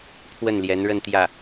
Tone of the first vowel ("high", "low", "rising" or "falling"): falling